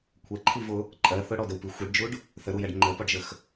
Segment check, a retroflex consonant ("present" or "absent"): present